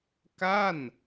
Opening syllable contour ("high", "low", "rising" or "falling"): falling